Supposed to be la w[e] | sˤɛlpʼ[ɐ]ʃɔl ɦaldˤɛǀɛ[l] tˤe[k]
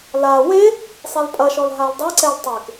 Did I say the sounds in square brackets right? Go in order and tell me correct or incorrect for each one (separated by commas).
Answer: correct, correct, correct, correct